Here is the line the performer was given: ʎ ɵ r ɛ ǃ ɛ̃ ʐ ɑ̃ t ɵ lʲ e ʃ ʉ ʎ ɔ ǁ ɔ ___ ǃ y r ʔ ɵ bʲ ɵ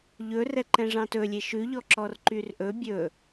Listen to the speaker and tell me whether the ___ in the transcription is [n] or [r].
r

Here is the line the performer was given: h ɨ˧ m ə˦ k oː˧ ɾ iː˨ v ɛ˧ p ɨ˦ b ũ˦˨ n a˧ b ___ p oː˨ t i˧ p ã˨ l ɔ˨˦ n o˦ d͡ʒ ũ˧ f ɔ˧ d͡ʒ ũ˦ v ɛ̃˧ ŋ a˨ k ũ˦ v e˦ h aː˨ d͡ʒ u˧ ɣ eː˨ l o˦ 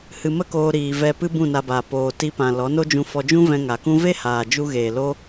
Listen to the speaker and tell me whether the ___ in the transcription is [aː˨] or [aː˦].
aː˨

